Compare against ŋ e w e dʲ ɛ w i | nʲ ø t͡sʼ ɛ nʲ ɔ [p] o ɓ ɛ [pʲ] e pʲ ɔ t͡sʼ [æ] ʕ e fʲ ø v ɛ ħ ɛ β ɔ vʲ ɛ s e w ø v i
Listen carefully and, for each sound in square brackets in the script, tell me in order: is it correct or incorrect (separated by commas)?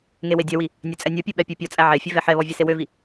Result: incorrect, correct, correct